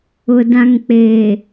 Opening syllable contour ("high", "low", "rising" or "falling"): low